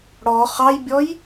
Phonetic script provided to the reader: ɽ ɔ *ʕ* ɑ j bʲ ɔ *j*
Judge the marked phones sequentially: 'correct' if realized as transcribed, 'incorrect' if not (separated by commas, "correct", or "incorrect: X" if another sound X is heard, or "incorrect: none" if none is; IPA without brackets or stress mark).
incorrect: χ, correct